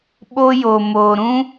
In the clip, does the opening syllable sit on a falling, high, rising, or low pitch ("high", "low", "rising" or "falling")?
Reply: high